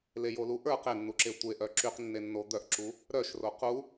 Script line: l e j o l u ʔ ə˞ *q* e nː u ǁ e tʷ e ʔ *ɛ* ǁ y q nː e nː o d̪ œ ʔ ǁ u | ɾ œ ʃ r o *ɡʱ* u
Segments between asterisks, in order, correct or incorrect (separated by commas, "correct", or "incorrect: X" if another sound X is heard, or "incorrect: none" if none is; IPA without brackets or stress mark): correct, incorrect: œ, incorrect: q